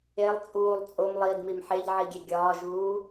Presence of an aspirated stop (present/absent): absent